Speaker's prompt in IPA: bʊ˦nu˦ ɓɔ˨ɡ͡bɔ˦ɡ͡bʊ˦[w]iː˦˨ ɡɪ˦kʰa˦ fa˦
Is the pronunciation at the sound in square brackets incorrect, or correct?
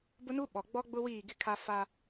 correct